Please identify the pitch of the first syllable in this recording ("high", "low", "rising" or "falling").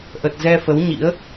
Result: low